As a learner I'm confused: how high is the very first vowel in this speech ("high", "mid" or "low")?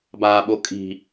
low